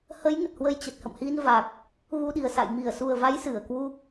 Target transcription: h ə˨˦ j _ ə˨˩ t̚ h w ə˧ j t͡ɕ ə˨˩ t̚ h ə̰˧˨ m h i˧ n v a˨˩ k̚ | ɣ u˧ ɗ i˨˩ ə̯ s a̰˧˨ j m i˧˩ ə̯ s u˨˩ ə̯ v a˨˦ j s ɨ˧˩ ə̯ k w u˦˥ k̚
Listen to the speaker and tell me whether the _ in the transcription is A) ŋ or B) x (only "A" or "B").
A